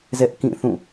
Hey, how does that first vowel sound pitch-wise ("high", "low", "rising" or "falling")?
high